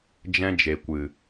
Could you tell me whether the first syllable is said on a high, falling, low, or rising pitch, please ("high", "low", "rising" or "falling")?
high